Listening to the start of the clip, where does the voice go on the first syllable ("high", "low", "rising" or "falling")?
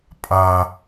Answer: high